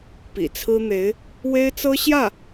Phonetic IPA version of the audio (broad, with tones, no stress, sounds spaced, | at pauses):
p ḭ˨˩ t͡sʰ ɹ̩˥ n̪ e˧˥ ɪ̯ | w e˥ ɪ̯ t͡s ɤ˥ ɕ j ä˥˩